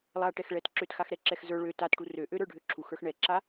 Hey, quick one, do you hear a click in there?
yes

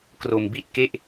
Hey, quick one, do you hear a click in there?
no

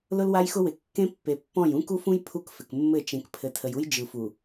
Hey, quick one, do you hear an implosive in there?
no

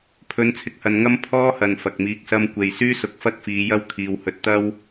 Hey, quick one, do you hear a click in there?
no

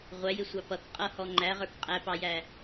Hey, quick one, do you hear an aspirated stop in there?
no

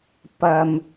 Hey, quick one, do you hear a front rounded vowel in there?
no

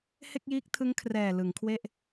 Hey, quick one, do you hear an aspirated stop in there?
yes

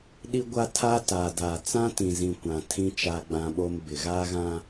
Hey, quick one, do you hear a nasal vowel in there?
yes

